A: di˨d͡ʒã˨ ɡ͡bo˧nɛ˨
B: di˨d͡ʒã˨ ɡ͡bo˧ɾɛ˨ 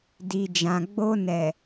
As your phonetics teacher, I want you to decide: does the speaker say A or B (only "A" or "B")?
A